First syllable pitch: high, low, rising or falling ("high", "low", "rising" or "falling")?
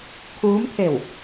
rising